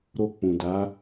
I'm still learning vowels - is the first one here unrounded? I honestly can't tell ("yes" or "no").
no